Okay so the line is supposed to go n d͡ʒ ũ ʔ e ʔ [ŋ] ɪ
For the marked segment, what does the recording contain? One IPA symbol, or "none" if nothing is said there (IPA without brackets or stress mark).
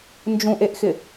x